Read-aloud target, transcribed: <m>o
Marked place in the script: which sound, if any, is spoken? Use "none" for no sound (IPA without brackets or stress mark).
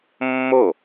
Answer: mː